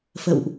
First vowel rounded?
no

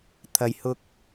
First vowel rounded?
no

